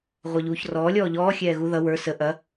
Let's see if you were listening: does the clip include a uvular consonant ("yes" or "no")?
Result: yes